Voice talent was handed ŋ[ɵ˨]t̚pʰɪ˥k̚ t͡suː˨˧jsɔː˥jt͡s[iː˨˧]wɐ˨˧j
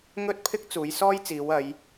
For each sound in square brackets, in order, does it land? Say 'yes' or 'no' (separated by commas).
no, yes